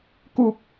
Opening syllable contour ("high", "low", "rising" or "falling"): high